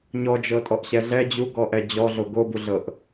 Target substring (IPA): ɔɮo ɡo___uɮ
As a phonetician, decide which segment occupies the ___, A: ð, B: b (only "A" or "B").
B